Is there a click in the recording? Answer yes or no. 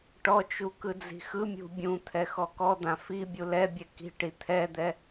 no